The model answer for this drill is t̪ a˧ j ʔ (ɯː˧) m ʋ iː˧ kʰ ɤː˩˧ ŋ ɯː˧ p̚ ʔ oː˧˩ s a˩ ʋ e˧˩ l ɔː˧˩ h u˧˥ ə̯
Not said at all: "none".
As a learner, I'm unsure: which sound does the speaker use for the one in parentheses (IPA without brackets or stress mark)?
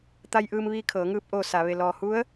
ɯː˧